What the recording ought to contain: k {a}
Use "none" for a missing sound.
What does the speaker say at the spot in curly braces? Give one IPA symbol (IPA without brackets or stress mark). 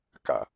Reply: a̰